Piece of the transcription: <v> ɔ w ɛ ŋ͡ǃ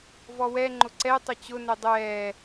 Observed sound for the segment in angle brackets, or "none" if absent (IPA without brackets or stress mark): v